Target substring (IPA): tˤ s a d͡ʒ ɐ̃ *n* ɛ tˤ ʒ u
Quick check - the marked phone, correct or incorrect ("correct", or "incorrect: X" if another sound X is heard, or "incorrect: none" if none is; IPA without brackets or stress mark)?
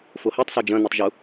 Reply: correct